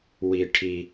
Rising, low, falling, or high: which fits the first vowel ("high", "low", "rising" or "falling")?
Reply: high